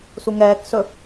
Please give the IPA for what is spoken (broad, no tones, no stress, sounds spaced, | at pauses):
s u ŋ ɛː k s ɵ